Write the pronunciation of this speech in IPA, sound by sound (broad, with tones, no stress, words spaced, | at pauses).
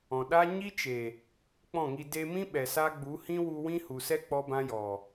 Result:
ɔ̃˨ɗa˦ ɲi˦t͡ʃe˨ | k͡pɔ̃˦˨ŋi˧ de˧mĩ˦ ɓɛ˨sa˧ ɡ͡bu˨˦ hĩ˦wu˧ wĩ˦hu˨sɛ˦ k͡pɔ˦bã˦jɔ˨